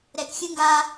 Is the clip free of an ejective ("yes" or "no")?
yes